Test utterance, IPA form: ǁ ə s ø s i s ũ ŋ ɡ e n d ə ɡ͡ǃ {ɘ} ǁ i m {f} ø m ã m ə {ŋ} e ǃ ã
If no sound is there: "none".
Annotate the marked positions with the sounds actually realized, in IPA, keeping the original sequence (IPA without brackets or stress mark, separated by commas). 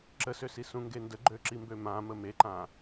ø, b, m